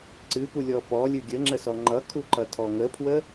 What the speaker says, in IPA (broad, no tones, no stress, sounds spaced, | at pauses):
ǀ ɨ p u lʲ ɔ p ɔ lʲ ɨ ɡʲ ə ŋ͡ǁ ə s ɔ ŋ͡ǃ ʌ kʰ u ǃ ʌ tʰ ɔ ŋ ə pʰ w ə